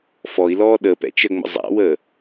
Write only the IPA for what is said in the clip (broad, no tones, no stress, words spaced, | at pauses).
fɔi̯lɔː ɗə pɛ̰t͡ʃəŋ͡mə̰ zˤa̰wəː